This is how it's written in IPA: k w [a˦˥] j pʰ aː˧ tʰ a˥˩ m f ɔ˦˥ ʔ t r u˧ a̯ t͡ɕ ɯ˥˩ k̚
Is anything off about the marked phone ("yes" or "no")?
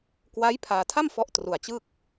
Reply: no